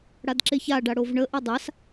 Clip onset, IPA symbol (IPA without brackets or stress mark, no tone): ɽ